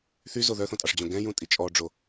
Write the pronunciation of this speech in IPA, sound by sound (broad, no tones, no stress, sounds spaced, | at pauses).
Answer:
θ y z o ð œ θ õ tʼ ɑ ʂ d͡ʑ õ ɡ ɛ̃ j ũ tʼ i t͡ʃʼ ɔ ɖ͡ʐ o